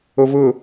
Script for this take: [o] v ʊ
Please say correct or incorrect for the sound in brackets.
correct